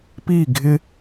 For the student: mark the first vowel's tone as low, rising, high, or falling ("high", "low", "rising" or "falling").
falling